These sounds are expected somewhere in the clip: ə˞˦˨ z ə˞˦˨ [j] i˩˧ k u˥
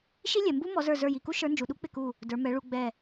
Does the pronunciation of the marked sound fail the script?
no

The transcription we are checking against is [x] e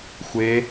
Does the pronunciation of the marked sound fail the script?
yes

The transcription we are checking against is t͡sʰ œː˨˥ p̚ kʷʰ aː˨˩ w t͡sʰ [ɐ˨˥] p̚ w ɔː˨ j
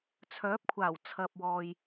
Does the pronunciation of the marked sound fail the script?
yes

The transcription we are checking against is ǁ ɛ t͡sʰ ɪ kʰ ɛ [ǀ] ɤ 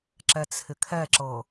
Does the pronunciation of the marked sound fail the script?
yes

